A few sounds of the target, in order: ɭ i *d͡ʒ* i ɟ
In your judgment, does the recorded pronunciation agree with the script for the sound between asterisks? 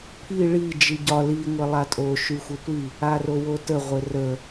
yes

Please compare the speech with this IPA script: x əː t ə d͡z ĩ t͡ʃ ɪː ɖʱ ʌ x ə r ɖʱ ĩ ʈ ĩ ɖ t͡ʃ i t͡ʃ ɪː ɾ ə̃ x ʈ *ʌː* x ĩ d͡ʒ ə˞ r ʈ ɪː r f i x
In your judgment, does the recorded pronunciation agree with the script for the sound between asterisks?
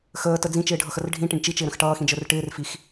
yes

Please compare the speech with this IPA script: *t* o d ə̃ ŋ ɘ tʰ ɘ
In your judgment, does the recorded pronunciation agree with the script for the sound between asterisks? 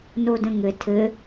no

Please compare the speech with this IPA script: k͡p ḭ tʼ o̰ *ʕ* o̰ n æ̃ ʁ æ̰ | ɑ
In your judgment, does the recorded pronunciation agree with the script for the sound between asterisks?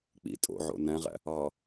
yes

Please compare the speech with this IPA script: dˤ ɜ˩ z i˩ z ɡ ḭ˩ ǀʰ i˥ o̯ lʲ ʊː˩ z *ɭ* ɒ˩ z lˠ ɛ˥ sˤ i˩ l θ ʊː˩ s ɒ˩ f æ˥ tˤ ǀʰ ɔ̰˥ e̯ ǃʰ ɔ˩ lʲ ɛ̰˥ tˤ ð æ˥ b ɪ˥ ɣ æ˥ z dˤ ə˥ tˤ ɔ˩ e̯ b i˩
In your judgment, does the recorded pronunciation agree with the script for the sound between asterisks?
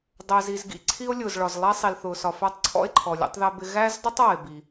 yes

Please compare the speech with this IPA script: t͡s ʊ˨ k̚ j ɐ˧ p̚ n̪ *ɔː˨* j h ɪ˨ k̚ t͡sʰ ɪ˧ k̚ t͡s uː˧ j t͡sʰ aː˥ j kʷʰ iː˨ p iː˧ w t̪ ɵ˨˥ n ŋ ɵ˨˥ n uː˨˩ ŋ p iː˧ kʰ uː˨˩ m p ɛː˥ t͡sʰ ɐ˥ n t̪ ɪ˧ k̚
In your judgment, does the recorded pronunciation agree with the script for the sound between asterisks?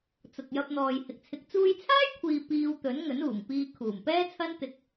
yes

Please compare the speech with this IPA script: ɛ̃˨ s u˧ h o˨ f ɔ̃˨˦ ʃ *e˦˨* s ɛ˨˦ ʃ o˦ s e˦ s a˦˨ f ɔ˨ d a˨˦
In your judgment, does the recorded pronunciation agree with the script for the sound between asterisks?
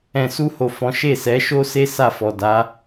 yes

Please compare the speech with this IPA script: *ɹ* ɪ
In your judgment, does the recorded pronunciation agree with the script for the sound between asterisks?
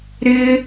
no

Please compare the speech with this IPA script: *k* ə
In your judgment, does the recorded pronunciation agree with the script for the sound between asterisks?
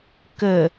yes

